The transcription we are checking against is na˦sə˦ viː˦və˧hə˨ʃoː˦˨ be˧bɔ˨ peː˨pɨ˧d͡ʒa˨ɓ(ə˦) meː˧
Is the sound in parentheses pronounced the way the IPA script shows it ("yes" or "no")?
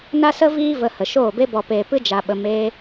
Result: no